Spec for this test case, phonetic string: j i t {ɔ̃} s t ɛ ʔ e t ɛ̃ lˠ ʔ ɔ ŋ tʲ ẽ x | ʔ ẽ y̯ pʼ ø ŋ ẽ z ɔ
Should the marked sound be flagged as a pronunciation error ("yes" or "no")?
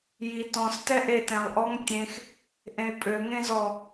no